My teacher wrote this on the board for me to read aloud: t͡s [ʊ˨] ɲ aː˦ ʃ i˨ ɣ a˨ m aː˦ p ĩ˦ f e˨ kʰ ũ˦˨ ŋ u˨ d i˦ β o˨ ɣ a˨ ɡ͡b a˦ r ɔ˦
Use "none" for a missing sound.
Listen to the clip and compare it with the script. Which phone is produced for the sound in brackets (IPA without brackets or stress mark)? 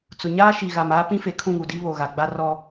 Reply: ʊ˨